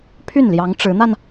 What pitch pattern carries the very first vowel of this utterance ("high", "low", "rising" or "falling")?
falling